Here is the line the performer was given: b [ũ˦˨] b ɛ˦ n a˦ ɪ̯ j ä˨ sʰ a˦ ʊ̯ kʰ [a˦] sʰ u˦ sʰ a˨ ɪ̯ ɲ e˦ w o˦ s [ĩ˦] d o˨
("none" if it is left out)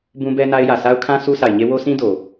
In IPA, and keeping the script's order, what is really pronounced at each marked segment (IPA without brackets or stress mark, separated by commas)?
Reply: ũ˦, ã˦, ĩ˦